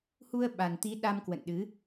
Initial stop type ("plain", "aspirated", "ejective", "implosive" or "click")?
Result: implosive